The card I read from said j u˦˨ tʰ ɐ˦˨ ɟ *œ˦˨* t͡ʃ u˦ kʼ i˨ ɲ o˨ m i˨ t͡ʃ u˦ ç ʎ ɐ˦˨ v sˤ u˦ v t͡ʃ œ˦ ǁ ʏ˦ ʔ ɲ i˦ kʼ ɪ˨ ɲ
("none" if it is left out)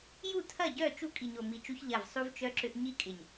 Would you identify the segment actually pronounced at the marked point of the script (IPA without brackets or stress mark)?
œ˦˨